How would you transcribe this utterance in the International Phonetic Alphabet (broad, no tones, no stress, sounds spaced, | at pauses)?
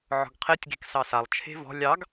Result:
ʕ ɔ̤ ɡ qʰ e tʲ ɡ e̤ k s ɑ s a lˠ t͡ʃʰ e̤ v ɔ̤ lʲ ɑ ɡ